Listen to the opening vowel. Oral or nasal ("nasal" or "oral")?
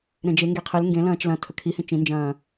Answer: nasal